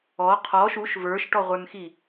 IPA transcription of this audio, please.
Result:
ɔ qʰ ɔ ʃ u ʃ v ə˞ ʃ ʈ ɔ ʁʷ ə˞ n x i

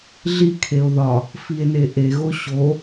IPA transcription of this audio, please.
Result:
ɮ i kʰ e o̯ ð ɒ | f i e̯ n e ʔ e ɣ o ɕ o

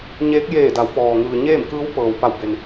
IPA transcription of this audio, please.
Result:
ɲ eː˧˥ k̚ j eː˧˩ d a˩˧ w p ɔː˩ ŋ ɯː˩ ɲ eː˥˨ m k ɯː˧˥ w p ɤː˩ w p a˧˩ w b e˩ n

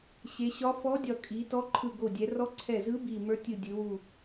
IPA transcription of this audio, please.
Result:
ɕ e˩˧ ɕ ɒ˧˥ f ɔ˧˥ dʲ ɒ˧˩ kʼ i˩˧ t ɔ˧˥ ǃʰ ɯ˧˩ ɡ o˧˩ dʲ ɛ˩˧ r ɔ˧˥ ǀʰ ɛ˧˩ z ɯ˧˥ b i˧˩ m ə˞˧˥ tʲ ɯ˧˩ dʲ ɯ˩˧ w u˧˩

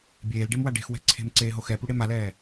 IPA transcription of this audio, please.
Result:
bʲ eː l ɖ e m w a ɖ e̤ x w ɛ̤ ǀʰ e̤ m ǀ eː ɦ o x ɛ p u ɽ e m a l ɛː

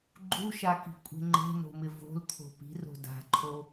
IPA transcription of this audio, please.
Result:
ɡ͡ǃ u ʃ a k i̤ kʷʼ e̤ ŋ͡ǃ e̤ n o̤ m ɪ v o̤ l t̪ʰ o̤ p i̤ r o̤ d a̤ ǃʰ o

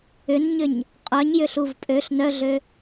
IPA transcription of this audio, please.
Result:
ʏ n ɲ ʏ ɲ | qʼ œ ɲ j ʏ ɬ u v pʼ ø ɬ n œ ɮ ø

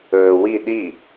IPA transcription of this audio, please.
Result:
ɵː w i ɗ i

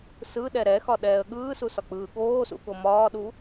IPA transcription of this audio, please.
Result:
s ɯ ɗ ɛ ɾ ɛ x ɒ ɗ ɛː ə̯ ɠ ɯː s u s ɒ k͡p ɯː ɠ oː s ṵ ɠ o m ɒː ɗ u

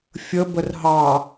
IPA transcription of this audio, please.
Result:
fʲ ə b ə r ɦ ɑ

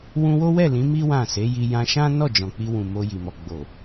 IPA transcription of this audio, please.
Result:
w ũ˧ w o˦ w ɛ˦˨ l ĩ˨˦ m i˦ w ã˦˨ s e˨˦ j i˧ j ã˧ ʃ ã˦ n ɔ˦˨ d͡ʒ ɔ̃˨ k͡p i˧ w ũ˨ m o˧ j i˨ m ɔ˨ ɡ͡b o˨

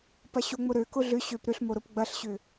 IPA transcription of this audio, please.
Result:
p ɐ ɕ o ŋ͡m ʊ ɾ ø k ʊ ɮ ʏ ɕ ø p ɾ ʏ ɬ m o ɾ ʊ p ɡ͡b ɐ ɬ ɕ ʏ

